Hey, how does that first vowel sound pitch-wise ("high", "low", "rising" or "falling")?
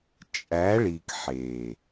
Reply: rising